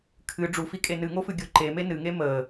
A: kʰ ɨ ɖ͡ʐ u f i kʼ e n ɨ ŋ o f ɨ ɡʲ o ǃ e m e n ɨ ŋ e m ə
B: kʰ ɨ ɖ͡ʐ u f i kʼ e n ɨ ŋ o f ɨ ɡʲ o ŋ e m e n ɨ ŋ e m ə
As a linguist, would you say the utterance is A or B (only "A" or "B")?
A